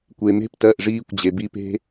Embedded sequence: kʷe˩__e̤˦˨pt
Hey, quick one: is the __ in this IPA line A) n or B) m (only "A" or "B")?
B